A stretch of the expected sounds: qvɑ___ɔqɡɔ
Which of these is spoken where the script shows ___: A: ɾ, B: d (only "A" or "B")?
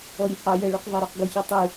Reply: A